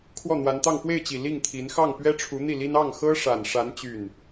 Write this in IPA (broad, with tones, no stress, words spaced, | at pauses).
kʰwɔ˥˩n̪wa˧˥nt̪ɑ˥˧ŋ pwe˥˩ɪ̯t͡ɕi˨˩ li˥˩ŋt̪ʰi˧˥n xɑ˥˩ŋpɥɛ˥ʈ͡ʂʰu˧˥ n̪i˥˩li˥n ɑ˥˩ŋxɤ˥ʂa˨˩nʂa˧˥n t͡ɕy˥˩n